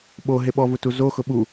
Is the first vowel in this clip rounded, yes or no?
yes